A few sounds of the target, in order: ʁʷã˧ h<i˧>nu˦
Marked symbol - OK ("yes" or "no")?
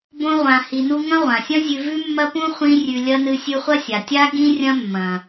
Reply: yes